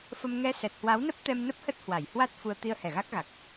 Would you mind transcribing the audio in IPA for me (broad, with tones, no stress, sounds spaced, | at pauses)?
f ə˧ m ŋ ɛ˧ s ɛ˨˩ t̚ h w a˨˦ w n ə˦˥ p̚ t̪ ɛ˧ m n ə˦˥ p̚ h ə˦˥ t̚ h w a˧˩ j h w a˦˥ t̚ f u˧ ə̯ t̪ i˧ ə̯ h ɛ˧˩ ɣ a˦˥ k̚ ɣ a˨˩ k̚